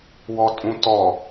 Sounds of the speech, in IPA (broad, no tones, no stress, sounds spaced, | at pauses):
w ɔ tʼ ũ t ɔ